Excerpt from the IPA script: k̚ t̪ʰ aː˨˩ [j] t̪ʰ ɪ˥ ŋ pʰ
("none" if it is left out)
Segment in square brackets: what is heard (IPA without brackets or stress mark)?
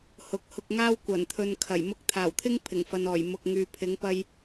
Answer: w